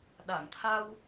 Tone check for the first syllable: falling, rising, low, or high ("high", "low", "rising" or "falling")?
low